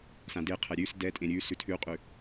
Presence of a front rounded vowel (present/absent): absent